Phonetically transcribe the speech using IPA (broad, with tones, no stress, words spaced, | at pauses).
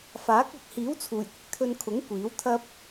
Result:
faː˨˥k̚ ɐ˨k̚hiː˨˥w t͡sʰuː˨˩jkʷɪ˧k̚t̪ʰɵ˧nkʰʊ˨˥ŋ kʷiː˨˥wt̪ʰɐ˥p̚